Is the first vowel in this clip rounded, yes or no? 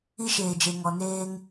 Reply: no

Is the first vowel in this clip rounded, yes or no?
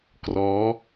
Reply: yes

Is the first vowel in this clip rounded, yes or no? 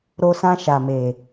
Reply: yes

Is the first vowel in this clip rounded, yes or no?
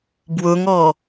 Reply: yes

